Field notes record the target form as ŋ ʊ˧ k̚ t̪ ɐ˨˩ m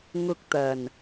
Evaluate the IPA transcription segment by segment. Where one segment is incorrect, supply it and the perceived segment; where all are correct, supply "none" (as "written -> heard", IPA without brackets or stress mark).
m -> n